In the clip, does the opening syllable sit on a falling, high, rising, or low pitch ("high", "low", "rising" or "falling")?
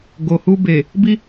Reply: low